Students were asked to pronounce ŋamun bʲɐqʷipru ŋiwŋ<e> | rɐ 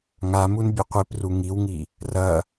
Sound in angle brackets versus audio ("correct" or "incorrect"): incorrect